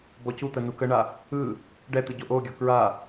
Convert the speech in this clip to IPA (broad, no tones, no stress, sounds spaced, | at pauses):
b ɔ c u t̪ ə n u k ə ɳ a | ɯ | ɖ ɛ t̪ ɯ ɟ o ʔ o ɡʲ ɔ k ɹ a